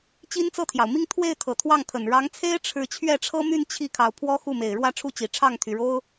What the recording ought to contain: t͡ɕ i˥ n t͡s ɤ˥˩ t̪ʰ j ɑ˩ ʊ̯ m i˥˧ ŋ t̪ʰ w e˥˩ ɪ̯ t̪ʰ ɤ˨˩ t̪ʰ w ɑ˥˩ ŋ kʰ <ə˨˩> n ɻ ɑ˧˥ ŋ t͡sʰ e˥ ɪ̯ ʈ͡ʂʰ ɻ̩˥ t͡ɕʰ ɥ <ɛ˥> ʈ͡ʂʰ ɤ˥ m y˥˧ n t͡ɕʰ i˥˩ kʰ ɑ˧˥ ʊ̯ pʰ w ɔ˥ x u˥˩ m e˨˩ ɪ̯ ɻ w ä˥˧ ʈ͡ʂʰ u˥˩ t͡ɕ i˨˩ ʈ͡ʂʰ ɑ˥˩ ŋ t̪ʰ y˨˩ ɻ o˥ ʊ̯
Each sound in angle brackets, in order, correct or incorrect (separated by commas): correct, incorrect